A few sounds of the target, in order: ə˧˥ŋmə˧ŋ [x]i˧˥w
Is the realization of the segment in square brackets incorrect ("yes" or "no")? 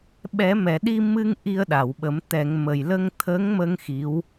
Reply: no